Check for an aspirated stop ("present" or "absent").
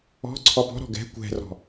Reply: present